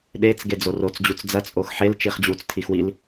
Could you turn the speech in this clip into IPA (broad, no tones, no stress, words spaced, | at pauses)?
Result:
ɗet͡sɡe d͡zorot͡sd͡ʑut͡s d͡zɐt͡sʼox ħel t͡ʃiχd͡ʑut͡stʰix wil